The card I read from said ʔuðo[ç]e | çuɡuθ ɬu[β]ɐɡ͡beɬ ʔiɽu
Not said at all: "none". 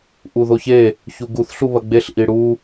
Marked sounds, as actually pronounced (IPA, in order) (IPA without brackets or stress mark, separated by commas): ç, β